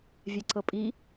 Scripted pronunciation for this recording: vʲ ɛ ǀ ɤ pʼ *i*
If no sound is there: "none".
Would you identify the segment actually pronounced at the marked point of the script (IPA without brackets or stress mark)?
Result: i